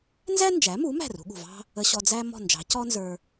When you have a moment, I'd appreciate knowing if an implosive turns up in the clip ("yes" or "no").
yes